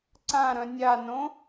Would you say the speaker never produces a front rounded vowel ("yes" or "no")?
no